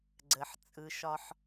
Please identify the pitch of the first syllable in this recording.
low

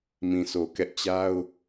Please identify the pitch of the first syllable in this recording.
low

